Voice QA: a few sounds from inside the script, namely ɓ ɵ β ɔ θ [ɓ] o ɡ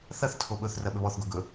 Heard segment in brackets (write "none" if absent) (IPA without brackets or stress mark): ɡ